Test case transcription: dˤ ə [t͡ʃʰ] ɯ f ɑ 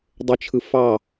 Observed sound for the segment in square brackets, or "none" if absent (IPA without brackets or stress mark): t͡ʃʰ